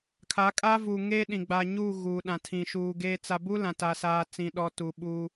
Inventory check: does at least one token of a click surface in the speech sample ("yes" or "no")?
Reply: no